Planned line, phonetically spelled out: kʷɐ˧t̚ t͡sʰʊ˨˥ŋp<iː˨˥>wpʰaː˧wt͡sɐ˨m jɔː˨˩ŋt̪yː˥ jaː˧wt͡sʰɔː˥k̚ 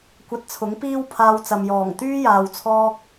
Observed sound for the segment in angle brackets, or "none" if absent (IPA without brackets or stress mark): iː˥